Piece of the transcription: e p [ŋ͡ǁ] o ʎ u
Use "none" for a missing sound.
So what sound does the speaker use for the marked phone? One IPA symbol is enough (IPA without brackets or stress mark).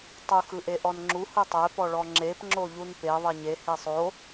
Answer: ŋ͡ǁ